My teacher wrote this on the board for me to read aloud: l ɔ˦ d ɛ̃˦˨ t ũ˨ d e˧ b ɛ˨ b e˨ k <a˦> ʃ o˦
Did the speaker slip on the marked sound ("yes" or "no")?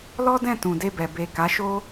yes